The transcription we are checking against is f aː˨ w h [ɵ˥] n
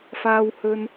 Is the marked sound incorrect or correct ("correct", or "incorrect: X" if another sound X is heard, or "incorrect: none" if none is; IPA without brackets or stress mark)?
incorrect: ɵ˨